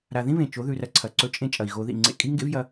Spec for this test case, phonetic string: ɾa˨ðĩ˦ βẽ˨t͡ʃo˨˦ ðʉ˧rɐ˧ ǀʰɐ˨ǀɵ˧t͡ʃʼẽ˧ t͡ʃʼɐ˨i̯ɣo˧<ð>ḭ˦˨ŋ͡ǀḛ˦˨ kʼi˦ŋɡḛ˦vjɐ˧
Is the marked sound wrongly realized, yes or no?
no